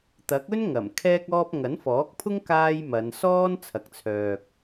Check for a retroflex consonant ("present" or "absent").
absent